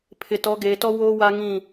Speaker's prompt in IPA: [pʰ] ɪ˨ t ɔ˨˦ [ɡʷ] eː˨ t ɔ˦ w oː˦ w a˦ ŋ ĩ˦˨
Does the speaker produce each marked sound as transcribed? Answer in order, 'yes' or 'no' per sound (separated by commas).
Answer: yes, no